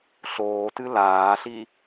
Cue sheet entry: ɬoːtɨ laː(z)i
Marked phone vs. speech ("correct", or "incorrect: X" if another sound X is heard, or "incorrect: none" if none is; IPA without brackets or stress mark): incorrect: ɬ